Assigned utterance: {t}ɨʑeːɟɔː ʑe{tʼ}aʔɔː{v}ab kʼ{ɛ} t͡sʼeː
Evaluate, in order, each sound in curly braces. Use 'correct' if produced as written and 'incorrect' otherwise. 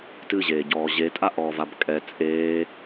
correct, correct, correct, correct

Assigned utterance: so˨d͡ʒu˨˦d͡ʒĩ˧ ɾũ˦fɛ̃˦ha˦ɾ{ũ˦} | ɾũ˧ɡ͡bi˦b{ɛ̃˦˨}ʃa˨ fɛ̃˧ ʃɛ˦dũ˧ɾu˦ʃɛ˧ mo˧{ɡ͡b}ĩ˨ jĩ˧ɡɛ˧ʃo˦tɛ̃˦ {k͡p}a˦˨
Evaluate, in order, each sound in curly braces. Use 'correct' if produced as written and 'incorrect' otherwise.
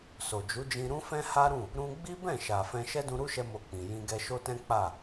incorrect: ũ˦˨, correct, incorrect: k͡p, correct

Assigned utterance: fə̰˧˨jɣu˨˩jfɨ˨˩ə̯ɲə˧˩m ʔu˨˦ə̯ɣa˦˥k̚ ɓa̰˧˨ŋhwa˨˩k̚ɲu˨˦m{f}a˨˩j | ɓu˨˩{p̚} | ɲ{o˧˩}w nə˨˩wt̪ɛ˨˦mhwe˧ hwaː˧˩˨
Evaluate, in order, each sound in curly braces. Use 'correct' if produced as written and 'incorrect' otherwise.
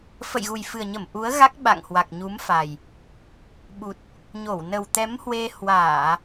correct, incorrect: t̚, correct

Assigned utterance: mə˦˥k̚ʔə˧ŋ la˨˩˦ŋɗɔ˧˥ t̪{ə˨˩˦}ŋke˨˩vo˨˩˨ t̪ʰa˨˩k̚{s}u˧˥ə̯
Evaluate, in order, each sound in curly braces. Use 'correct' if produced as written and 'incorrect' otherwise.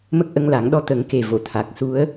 correct, correct

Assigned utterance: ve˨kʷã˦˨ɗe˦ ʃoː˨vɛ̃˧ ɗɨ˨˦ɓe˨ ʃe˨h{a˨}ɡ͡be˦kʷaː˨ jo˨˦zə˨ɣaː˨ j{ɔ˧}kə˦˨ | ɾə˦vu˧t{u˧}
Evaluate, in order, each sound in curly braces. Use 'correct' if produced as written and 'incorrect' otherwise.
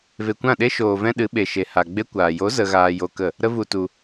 correct, incorrect: o˧, correct

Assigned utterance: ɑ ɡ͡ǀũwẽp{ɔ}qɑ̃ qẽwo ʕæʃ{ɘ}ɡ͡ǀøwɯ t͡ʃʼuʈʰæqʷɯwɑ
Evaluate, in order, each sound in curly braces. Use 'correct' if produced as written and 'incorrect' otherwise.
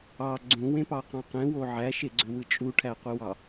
incorrect: ɑ, incorrect: e

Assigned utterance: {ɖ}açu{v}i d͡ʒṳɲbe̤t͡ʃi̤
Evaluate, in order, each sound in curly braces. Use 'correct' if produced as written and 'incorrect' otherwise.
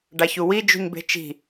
correct, incorrect: w

